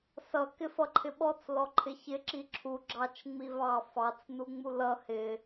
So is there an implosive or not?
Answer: yes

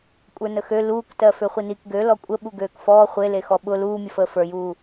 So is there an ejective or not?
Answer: yes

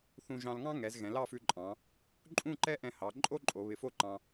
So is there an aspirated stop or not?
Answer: no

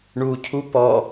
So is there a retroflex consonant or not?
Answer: yes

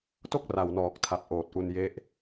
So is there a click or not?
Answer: no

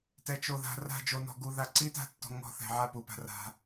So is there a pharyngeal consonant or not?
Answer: yes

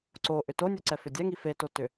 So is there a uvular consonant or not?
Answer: no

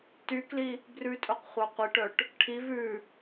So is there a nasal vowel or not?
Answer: no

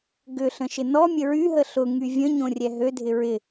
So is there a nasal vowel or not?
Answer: yes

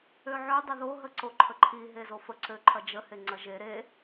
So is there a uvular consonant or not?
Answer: no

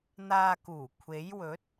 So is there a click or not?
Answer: no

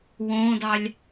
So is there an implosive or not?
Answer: no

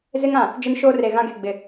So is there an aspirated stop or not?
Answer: no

